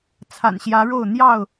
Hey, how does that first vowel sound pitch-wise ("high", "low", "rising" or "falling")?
low